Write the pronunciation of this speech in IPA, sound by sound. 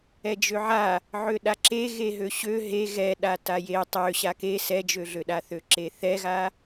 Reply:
ɛ d͡ʒ ø ʕ a | ʕ ø ɗ a ǁ e ɣ e ɦ ø ɕ ø ɦ e ɣ ɛ ɗ a t a j e tˤ ø ɕ a k e s ɛ d͡ʒ ø ɮ ø ɗ a θ ø ǁ e θ ɛ ɣ a

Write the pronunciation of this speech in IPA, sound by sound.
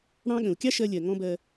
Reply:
ɽ ɑ̃˥ ɠ ə̃˩ u̯ kʲ ɑ˥ ʃ ɜ˧ lʲ ɜ˩ ŋ ɔ̃˥ b ɜ˧

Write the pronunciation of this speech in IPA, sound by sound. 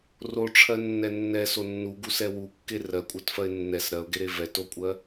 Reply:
r o ʈ͡ʂʰ ɜ nː ɛ nː ɛ s o nː u ɡ u s ɛ w u kː e r ɜ kʷʼ ɜ t f ɜ ɪ̯ nː ɛ s ɾ ɜ ʊ̯ ɡ e ɾ e v ɛ t o kʷʼ ɜ

